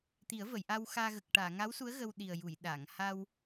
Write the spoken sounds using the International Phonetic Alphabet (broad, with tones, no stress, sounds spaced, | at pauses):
t̪ i˨˩˦ ə̯ v ə˨˩˨ j ʔ a˧ w x aː˧ ɣ ə˨˩ k̚ ʈ aː˨˩˨ ŋ a˧˥ w s u˧˥ ə̯ ɣ ə˧ w ɗ i˨˩ ə̯ j u˨˩˨ j ɗ a˨˩˨ ŋ h a˧ w